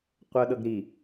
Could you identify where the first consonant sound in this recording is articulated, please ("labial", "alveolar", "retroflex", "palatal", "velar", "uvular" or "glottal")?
uvular